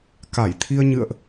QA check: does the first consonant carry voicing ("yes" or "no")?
no